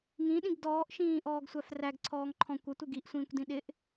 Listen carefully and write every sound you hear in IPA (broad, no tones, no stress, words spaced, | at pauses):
ŋĩɗĩɡ dɔːʔʃĩːʔɔːɡsʷæf ræɡǀʰɔːŋǃʰɔ̃ kʷətʷɪ ɡiʔsʷĩːkʷdĩ ɗɪʔ